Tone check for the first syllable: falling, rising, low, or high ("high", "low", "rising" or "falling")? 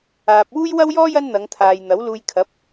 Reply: low